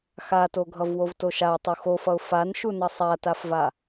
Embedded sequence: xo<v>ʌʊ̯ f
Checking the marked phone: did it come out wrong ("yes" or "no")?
yes